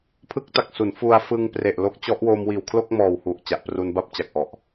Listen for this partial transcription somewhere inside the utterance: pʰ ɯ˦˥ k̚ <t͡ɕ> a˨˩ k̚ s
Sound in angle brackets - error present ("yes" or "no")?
yes